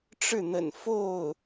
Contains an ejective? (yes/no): no